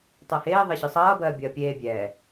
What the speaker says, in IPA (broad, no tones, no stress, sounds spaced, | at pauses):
tˤ ɜ h eː ðˤ e ɕ ɯ sˤ ʌː b ɜː bʲ ɐː pʲ eː bʲ ɛː